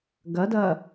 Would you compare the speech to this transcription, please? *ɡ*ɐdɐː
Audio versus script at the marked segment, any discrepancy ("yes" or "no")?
no